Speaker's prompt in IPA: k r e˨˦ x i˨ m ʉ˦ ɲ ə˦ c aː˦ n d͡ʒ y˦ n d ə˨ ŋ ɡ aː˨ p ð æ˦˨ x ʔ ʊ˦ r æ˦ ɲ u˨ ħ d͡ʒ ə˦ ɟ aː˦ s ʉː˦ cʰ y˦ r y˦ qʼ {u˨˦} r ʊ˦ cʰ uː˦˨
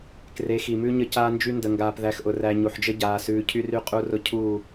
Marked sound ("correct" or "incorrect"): incorrect